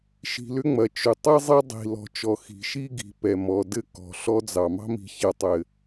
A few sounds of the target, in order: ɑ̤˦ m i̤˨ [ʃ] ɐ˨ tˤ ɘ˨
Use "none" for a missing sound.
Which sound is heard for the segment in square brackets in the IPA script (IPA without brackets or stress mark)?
ç